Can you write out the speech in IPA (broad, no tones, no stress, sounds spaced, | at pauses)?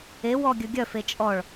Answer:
e w ɔ ɡʲ ɵ ɡʲ œ f e t͡ʃʼ ɔ ɭ